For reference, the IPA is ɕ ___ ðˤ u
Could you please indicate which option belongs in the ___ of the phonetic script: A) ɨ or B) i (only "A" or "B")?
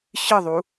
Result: A